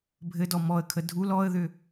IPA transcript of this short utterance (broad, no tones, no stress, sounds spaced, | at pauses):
bʱ ɘ d ɔ m ɔ ə̯ kʰ ə dʱ u l ɔ ə̯ ð ʏ